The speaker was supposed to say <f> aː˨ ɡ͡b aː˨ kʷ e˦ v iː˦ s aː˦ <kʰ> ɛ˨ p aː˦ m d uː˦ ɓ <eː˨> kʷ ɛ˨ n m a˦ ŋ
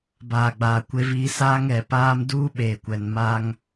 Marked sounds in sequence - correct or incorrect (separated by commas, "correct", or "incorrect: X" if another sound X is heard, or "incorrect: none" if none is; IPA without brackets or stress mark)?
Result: incorrect: b, incorrect: ŋ, correct